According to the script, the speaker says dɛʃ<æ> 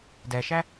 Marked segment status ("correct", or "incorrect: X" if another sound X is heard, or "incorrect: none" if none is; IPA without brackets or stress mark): correct